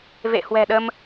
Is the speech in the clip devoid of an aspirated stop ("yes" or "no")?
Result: yes